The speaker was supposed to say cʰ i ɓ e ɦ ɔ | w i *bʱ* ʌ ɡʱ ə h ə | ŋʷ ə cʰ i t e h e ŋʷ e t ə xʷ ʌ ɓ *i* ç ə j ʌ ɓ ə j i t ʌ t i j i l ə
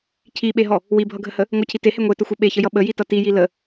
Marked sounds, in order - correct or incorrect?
correct, incorrect

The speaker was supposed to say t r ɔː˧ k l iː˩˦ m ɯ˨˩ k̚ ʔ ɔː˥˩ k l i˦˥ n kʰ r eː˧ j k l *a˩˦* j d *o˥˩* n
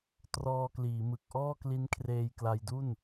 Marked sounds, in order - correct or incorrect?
incorrect, incorrect

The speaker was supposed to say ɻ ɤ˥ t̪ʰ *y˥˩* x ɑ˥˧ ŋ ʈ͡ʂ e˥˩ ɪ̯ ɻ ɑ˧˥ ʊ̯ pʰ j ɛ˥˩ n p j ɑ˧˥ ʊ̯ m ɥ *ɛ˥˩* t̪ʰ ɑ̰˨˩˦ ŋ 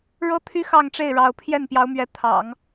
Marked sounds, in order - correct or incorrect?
incorrect, incorrect

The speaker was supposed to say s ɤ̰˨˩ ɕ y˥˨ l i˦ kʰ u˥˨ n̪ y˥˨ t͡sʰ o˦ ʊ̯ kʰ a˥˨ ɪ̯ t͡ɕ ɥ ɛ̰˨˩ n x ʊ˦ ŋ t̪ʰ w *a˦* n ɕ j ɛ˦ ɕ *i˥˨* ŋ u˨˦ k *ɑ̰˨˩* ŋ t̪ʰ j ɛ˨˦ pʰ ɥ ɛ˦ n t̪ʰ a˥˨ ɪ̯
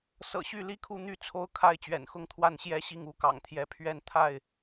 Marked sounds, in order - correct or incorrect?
incorrect, correct, correct

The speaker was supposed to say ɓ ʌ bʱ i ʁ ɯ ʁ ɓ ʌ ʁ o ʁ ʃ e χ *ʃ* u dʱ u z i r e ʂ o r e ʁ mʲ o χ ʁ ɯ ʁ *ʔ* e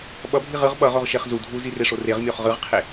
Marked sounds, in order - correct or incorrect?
incorrect, incorrect

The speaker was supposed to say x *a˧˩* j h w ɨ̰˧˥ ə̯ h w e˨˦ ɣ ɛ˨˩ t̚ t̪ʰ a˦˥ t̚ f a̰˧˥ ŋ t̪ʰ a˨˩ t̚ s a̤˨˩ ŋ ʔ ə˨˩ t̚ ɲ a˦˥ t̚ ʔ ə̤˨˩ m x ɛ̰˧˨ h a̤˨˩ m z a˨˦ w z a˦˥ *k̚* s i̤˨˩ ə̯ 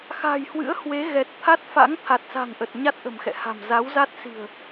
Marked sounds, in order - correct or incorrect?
incorrect, incorrect

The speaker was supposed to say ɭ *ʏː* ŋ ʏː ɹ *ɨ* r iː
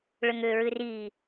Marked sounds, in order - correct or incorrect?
incorrect, correct

